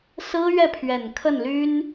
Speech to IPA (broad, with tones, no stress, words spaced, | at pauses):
sɹ̩˥ɥɛ˥˩pʰɥɛ˨˩n kʰə˥˩nly˥n